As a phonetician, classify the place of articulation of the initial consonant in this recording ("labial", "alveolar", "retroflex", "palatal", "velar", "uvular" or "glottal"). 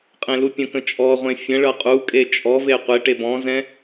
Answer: uvular